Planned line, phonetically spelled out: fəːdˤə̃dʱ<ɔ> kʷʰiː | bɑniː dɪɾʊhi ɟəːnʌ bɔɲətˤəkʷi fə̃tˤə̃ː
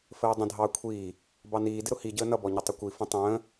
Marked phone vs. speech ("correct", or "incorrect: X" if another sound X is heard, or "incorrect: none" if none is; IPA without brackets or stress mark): incorrect: ɑ